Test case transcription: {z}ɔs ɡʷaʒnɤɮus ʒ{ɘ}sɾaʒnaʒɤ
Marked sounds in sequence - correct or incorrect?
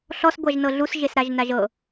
incorrect: ɬ, incorrect: e

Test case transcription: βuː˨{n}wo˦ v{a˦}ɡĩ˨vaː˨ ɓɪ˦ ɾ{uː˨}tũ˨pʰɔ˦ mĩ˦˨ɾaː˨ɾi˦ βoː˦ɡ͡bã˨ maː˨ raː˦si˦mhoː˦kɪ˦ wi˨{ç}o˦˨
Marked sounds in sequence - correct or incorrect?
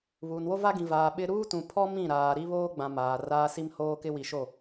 correct, correct, incorrect: uː˦, incorrect: ʃ

